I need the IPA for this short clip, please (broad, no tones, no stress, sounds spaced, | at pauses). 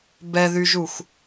b ɛ ð y ʒ u x